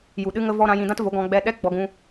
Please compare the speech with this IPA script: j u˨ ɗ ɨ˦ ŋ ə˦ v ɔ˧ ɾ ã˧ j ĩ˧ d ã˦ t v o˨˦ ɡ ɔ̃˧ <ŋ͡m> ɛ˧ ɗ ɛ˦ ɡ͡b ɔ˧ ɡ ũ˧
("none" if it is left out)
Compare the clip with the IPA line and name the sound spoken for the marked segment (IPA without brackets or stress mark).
ɡ͡b